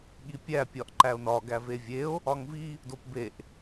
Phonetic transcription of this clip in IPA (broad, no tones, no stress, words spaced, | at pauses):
ɠipʲæ pʲɒʔǃæo̯nɒ ɡævevʲeo̯ | ɒŋvi | dopbeʔ